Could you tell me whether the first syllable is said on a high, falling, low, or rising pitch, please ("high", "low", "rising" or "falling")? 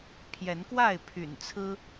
rising